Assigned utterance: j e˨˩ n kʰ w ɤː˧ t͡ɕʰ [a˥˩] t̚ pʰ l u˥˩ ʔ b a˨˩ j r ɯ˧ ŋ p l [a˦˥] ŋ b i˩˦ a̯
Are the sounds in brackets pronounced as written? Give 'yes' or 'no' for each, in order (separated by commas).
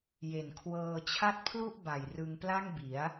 yes, no